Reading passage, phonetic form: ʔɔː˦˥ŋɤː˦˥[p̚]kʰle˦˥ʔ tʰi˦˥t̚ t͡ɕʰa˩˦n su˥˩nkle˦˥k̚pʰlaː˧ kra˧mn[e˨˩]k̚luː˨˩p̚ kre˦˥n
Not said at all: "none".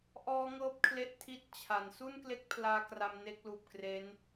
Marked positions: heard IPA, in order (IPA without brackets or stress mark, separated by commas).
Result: p̚, e˦˥